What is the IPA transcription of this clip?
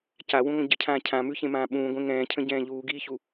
c a w ũ ŋʷ ə̃ ɟ ə cʰ ãː cʰ ã m ʉ ç ẽ m ãː ɓ ũː ɡʷ ẽ ŋ ɛ̃ː cʰ ə̃ ɟ ɛ̃ː ʎ uː ɡ iː ç u

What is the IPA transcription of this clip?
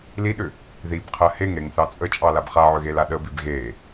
l i ɗ ʏ | ð i b qʰ ɜ h e ŋ ɾ e ŋ θ ɑ t͡sʼ ə t͡ʃʼ ɑ l a b χ a ʕ ʏ ɣ e l a ɗ ə b i b ɣ e

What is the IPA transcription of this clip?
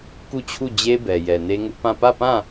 k u˦˨ t͡ɕʰ u˦˨ d͡ʑ e˦ b ɛ˨ j ɛ˨ n e˦ ŋ ʊ˦ ʔ p ã˦˨ p ä˦˨ p ã˦˨

